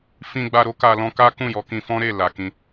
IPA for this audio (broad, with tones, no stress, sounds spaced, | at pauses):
f ĩ˧ ɡ͡b a˧ ɾ o˦ k a˧ l ɔ̃˧ k a˦ k ũ˦˨ j ɔ˨˦ k ĩ˧ f ɔ̃˦ ɾ e˦˨ l a˨ k ĩ˧